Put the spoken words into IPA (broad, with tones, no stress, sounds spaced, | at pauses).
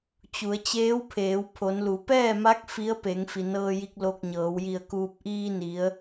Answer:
t͡ɕ u˩˧ ə̯ t͡ɕ eː˧˥ w pʰ eː˩˧ w pʰ o˩˧ n l u˩˧ p ɛː˥˨ m a˧˥ k̚ f i˧˥ ə̯ p e˩˧ ŋ f i˩ n ɤː˧ j i˧ k̚ l o˧ k̚ ɲ ɤː˩˧ w j i˧˩ ə̯ k uː˧ p̚ ʔ iː˧ n i˩˧ ə̯